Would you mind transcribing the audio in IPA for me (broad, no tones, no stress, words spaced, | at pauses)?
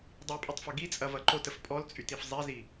dˤipʼytˤfɐ ɡit͡sʼɐvɐ ǃotəf pʼɔlt͡sʼytif zˤezi